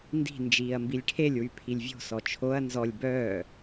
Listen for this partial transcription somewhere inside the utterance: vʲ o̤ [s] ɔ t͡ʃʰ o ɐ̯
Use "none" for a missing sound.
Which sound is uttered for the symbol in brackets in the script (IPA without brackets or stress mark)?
s